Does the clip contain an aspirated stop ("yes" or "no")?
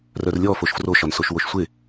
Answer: no